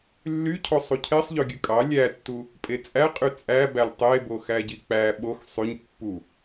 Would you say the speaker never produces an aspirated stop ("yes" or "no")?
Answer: no